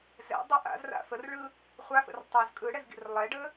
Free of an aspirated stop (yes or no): yes